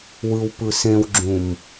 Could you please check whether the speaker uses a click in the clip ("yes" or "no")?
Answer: yes